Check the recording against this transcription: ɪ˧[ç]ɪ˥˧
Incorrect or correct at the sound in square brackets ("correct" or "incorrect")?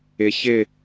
correct